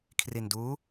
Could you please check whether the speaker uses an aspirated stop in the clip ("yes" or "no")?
yes